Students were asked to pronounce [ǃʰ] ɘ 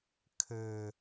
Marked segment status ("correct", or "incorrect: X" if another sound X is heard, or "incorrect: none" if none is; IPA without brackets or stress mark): incorrect: kʰ